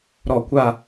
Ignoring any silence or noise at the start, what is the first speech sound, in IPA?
ɾ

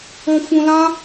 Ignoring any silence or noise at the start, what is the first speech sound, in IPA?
ɔ̃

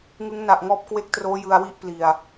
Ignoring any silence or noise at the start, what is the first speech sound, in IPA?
ŋ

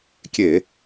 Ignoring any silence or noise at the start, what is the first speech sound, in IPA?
kʲ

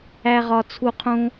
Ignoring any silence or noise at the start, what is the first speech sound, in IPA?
æ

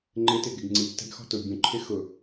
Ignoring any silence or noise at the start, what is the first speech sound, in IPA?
ŋ͡ǃ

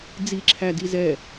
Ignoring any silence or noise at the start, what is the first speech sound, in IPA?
d͡z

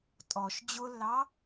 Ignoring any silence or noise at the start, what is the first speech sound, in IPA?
tʼ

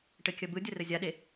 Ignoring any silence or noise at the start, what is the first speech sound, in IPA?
ʈ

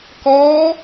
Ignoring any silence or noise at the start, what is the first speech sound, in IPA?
k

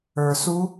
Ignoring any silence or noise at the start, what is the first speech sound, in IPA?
ə˞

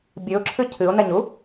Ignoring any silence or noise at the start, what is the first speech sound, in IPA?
bʲ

